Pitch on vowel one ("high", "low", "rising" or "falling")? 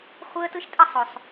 high